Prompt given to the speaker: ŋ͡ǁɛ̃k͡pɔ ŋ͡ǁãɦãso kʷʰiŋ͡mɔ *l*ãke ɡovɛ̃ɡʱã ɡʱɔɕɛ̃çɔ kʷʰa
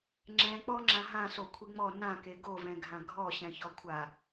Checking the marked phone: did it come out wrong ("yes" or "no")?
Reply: yes